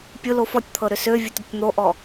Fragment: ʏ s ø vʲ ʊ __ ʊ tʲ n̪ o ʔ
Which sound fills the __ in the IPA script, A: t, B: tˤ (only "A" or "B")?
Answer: A